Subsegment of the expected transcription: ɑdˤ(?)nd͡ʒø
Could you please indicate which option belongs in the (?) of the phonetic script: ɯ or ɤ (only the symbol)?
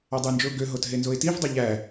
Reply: ɯ